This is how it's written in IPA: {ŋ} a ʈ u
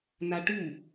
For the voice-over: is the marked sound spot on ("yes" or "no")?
no